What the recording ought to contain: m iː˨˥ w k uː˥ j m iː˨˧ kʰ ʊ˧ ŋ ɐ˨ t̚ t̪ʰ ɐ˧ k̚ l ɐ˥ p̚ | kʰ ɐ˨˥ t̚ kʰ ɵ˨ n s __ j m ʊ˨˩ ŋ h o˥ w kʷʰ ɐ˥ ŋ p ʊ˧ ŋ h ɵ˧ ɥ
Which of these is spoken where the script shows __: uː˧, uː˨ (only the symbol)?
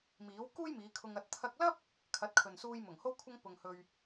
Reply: uː˧